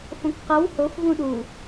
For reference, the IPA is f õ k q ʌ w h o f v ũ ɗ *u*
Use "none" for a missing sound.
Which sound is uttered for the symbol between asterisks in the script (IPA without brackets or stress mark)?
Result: u